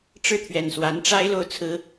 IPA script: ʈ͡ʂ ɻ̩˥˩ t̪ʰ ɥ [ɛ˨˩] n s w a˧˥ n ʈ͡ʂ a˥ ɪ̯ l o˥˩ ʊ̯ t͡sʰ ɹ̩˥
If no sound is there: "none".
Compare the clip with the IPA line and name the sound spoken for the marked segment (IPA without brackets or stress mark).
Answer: ɛ˨˩